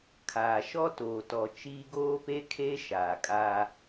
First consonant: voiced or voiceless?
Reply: voiceless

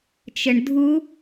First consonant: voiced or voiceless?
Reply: voiceless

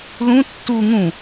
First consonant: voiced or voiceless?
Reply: voiced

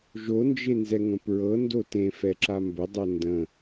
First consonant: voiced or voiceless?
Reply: voiced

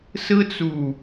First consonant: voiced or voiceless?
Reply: voiceless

